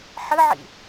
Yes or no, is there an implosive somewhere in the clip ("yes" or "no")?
no